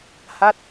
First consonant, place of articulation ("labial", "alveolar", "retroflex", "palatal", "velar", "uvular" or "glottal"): glottal